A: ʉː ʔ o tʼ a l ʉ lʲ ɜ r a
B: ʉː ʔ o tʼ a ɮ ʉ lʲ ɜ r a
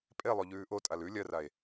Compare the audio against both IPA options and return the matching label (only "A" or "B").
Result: A